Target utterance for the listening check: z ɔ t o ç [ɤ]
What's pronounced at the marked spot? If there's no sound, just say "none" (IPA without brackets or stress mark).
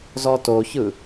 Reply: ɯ